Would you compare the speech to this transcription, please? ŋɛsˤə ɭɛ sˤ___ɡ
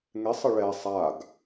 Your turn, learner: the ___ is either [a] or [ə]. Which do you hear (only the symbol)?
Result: a